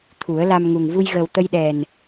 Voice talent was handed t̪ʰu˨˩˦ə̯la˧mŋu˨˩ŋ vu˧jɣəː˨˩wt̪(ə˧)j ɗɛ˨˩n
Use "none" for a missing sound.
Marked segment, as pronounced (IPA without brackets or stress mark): ə˧